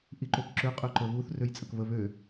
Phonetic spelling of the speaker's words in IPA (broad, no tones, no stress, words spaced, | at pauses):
ʔiǃøkǁø qʼøǃəβuθ røjt͡sʼəkβə βø